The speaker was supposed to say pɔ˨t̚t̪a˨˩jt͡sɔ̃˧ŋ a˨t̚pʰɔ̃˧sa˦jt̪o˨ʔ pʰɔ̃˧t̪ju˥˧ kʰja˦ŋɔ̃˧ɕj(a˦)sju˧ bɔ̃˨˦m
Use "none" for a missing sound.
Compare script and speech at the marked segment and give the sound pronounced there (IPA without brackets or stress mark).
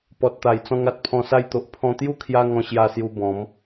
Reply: a˧